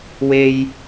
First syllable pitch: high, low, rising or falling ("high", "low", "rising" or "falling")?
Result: high